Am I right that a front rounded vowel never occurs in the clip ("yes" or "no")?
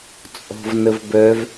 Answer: no